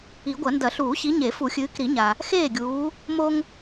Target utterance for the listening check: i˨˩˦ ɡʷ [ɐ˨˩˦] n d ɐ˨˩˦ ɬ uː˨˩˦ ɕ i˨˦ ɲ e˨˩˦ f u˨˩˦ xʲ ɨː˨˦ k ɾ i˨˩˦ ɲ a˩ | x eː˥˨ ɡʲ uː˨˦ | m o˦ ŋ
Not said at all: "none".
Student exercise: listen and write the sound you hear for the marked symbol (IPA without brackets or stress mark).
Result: ɐ˨˩˦